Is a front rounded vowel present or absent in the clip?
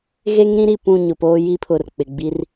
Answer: absent